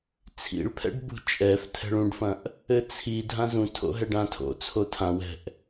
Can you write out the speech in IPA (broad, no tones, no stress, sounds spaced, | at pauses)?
t͡sʰ ḭ ɭ pʰ ɛ̰ ɖ b ṳ t͡ʃʼ ɛ f tʰ ɛ̤ ɭ ũ ɖ f ɐ̃ ʔ | ɘ t͡sʰ i dʱ ã z ũ tʰ o̰ ɦ ɛ ɖ ã tʰ o̰ t͡sʰ o tʰ ã w ɛ̤ ʔ